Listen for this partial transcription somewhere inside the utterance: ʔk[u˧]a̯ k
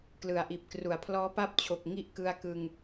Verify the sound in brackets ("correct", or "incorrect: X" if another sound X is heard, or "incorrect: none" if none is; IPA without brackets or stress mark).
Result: incorrect: ɯ˧